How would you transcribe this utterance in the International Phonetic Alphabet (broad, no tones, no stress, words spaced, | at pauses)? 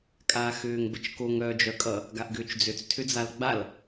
kʼaːxʏːŋbət͡ʃkoŋ œːd͡ʒœkʼʌ | ɡaʔɡʏːt͡ʃd͡zʏt͡s tʰʏd͡zalɡ͡bal